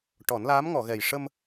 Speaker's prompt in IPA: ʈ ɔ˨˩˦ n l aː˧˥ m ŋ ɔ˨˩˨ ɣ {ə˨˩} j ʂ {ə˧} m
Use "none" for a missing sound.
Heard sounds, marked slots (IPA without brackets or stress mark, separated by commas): ɛ˨˩, ə˧